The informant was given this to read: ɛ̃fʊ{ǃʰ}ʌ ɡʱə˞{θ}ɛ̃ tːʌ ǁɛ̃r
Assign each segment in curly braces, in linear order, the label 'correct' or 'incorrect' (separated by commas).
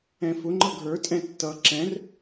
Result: incorrect, incorrect